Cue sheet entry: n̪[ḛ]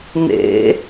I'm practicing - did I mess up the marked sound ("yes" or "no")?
no